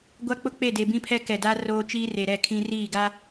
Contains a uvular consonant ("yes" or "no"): no